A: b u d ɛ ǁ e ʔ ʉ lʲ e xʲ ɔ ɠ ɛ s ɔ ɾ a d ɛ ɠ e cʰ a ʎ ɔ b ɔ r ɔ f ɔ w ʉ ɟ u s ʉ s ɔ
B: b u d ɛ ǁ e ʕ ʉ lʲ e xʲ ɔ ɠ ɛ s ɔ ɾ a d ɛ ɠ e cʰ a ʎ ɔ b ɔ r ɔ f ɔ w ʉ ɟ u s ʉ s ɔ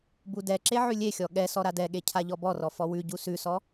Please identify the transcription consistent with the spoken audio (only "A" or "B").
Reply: B